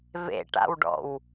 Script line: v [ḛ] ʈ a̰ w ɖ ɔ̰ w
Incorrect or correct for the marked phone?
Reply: correct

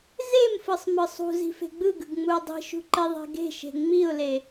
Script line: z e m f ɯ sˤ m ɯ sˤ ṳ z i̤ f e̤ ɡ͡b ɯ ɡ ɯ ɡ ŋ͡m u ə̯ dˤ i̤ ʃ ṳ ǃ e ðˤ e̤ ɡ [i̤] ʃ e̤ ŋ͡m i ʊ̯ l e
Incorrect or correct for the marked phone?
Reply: incorrect: e̤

